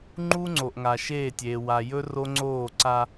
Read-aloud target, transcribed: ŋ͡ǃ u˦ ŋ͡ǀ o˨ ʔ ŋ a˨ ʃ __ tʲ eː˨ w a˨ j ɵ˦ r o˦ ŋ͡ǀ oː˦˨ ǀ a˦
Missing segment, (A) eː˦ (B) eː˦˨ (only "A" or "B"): B